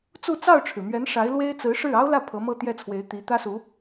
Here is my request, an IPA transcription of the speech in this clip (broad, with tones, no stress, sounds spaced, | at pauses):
t͡s u˥˧ t͡s ɑ˥˩ ʊ̯ ʈ͡ʂʰ ɻ̩˩ m ɥ ɛ˧˥ n ʂ a˧˥ ɪ̯ l w e˥ ɪ̯ t͡s ɹ̩˧˥ ʂ ɻ̩˥˩ ɑ˥ ʊ̯ l ä˥˩ pʰ ɤ˧˥ m ɤ˥˧ t̪ j ɛ˥˩ t͡sʰ w e˧˥ ɪ̯ t̪ i˧˥ t̪ ä˥ s u˧˥